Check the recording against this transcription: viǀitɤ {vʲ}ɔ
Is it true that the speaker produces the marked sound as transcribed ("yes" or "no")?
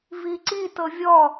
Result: yes